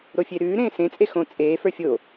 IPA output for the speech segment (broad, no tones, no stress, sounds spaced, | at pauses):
ɾ o fʲ e ɾ ʉː ɾ ẽː s ẽ t͡sʼ e x õ t͡sʼ eː f ə˞ fʲ o